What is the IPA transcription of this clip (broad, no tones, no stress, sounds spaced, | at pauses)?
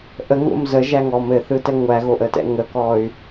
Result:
ʔ ə ŋ o̰ m z ə ʒ æ ŋ ɔ m ɘ θ ɯ t ɛ ŋʷ æ ɣ o ʔ ə t ɛ̰ ŋ ə k ɔ y̯